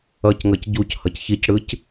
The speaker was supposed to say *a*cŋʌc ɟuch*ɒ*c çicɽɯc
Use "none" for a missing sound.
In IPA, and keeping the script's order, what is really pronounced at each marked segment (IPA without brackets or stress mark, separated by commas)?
ʌ, ʌ